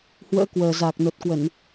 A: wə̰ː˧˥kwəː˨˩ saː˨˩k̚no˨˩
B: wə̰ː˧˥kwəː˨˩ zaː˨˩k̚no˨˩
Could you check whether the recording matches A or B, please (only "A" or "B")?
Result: B